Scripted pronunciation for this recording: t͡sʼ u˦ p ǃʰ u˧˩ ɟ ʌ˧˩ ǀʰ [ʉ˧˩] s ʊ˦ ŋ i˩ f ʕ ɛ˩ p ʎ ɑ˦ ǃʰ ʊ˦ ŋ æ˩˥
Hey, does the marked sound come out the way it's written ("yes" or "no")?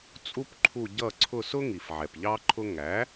no